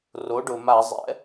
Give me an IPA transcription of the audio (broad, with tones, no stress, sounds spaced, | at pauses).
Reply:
r o˩˥ ɖ ʊ˩ m a˧˩˧ zˤ ɛ̰˩˥